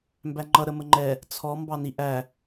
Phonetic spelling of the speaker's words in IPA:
m b æ ŋ͡ǃ ʌ ɾ ə m ə ŋ͡ǃ ɛ | t͡sʰ ɔ m b ɑ n i ʔ æ

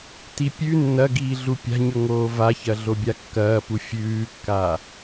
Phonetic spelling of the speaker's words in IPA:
t i pʲ ʉ nː ɐ ɡ iː ɮ u pʲ a̤ ɲ ɵ ŋ oː v a ç ɐ ɮ o bʲ a kː ɐː p u fʲ ʉː kː a

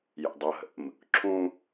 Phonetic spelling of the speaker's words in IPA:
j ə̰ dˤ ɤ ɦ ə̰ m | ǁʰ ũ

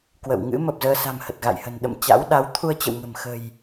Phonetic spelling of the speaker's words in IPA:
k w ə̰˧˨ w ŋ ɨ̰˧˥ m ə˨˩ p̚ z əː˧ s a̤˨˩ m h ə˨˩ t̚ ɣ a̰˧˨ j h ə̤˨˩ n ɗ ə̰˧˨ m t͡ɕ a̰˧˥ w ɗ a˨˦ w t̪ʰ u˧ ə̯ t͡ɕ ə̰˧˨ w ŋ ə̤˨˩ m x ə̤˨˩ j

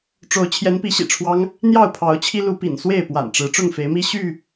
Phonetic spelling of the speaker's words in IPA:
ʈ͡ʂ o˨˦ ʊ̯ t͡ɕʰ j ɛ˨˦ n p i˨˦ ɕ ḭ˨˩ ʈ͡ʂʰ w ɑ˦ ŋ | n̪ j ɑ˥˨ ʊ̯ pʰ ɑ˨˦ ʊ̯ t͡ɕʰ i˦ l u˨˦ p ḭ˨˩ n s w e˥˨ ɪ̯ p w a̰˨˩ n ʈ͡ʂ ɻ̩˨˦ ʈ͡ʂ ʊ˥˨ ŋ f e˨˦ ɪ̯ m i˦ ɕ y˥˨

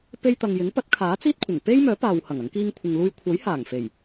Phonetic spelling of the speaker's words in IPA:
p e˧ j t̪ ɐ˨ ŋ j ɪ˨˥ ŋ p ɐ˨˥ t̚ kʰ aː˨˥ t͡s iː˥ t̚ kʷʰ ɪ˨˩ ŋ p e˥ j m œː˨˥ p aː˨ w h ɐ˨˩ ŋ ɐ˨˥ ŋ k iː˥ ŋ kʷʰ ɪ˧ ŋ l uː˥ j kʷʰ ɐ˨˥ j h aː˨˩ ŋ f e˨˩ j

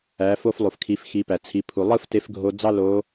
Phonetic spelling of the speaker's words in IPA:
æ˩˧ f o˧ f lˠ u˩ f kʰ i˩˧ f x i˩˧ p æ˩ t͡sʰ i˩˧ pʰ u˩ lˠ ɯ˥ f t e˧˥ f ɡʱ o˧ d͡z ɑ˥ l o˧˥

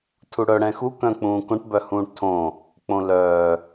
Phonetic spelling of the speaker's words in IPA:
tʰ u ɽ œ ɽ ɛ̃ x u k œ̃ k͡p ũː k õ ʈ b œ h ũː ʈ tʰ õ | k͡p õ l œː

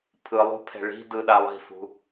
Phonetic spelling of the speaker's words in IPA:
pʰ ɯ lˠ ṳ pʰ ɛ̤ ɭ i̤ d ɯ ɗ a lˠ i̤ f ṳ

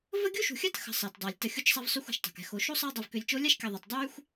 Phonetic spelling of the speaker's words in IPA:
v ə˥ ɡʲ u˥ ʃ ṳ˨ xʲ a˥ t x ə̤˨ sˤ əː˩ t dˤ a˩ lʲ t ə˨ xʲ u˦ t͡ʃ sˤ a˦ v sˤ y˦ xʷ a̤˨ ʃ tˤ a̤˩ k ɛ̤˨ x o˨ ʃ o˥ sˤ əː˦ dˤ œ˨ v k ø˨ lʲ t͡ʃ o˥ lʲ a˥ ʃ kʲ a˨ ðˤ ɛ˩ t dˤ yː˥ xʷ

